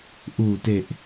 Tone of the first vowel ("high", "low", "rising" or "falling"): low